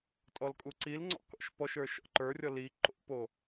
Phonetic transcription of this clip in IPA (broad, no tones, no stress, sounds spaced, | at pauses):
tʼ ɔ l kʼ u ǀ i l ŋ͡ǀ ɔ̰ k ɔ̰ ʃ p ɔ ʃ ə˞ ʃ ɔ̰ ǃ ə˞ rʲ ɔ l i ǃ o̰ p o